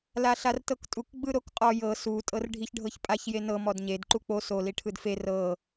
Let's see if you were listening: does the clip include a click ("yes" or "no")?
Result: yes